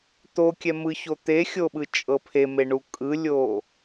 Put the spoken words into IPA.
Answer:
t̪ o kʲ ɛ m ɯ ç o t̪ e xʲ o ɓ ɯ t͡ʃʼ ɤ pʰ e m e ɳ u kʼ ɯ lʲ o

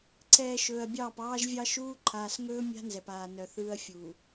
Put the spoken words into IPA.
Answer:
ǀʰ ɛː˨ ʃ ɵː˨ ɐ̯ bʲ ɑː˦˨ p ɑː˦ ʒ vʲ ɑ˦ ʃ uː˦ ǃʰ aː˨ s ŋ ɵː˦ mʲ a̤˦ n z ɛ˨ p aː˨ n œ˨ θ ɯː˦ ɐ̯ fʲ uː˨

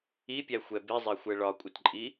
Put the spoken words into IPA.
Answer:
i pʲ æ xʷ ɛ b i zˤ ɛ xʷ ɛ ɭ ɒ kʷʼ ə t ǃʼ i

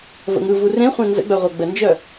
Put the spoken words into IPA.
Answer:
v ə̰ ŋ ɯ v u r ẽ χʷ ẽ n z ə̰ ɡ͡b œ ʁʷ œ ɡ͡b ə n d͡ʒ œ

